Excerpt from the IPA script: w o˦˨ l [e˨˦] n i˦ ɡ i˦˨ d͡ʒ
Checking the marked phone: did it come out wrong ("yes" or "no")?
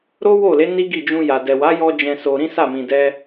no